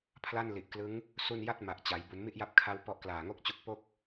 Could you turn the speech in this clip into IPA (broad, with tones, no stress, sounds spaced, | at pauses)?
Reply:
pʰ l a˥˩ n l i˨˩ ʔ k l ɯ˦˥ ŋ | s u˥˩ n j a˥˩ t̚ m a˨˩ ʔ t͡ɕ a˩˦ j b u˩˦ n m i˥˩ ʔ j a˦˥ p̚ kʰ a˧ w p ɔ˦˥ ʔ k l aː˨˩ ŋ o˥˩ k̚ t͡ɕ u˦˥ k̚ p o˥˩ k̚